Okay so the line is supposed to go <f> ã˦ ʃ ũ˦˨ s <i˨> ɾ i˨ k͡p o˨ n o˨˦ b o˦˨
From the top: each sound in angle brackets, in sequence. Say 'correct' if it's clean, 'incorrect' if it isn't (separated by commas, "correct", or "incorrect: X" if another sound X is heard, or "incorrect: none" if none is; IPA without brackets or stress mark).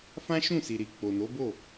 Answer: correct, correct